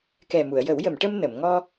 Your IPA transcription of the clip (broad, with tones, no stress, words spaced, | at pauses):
kɛ˨˩mu˨˩˨ə̯jə˨˩˦w jə˨˩˨mʈə˧m nə˨˩˨m ŋɔ˧